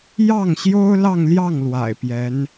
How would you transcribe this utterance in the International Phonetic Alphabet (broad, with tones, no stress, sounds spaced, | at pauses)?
j ɑ˥˩ ŋ ɕ j o˥ ʊ̯ l ɑ˥˧ ŋ l j ɑ˥˩ ŋ l w a̰˨˩ ɪ̯ p j ɛ˧˥ n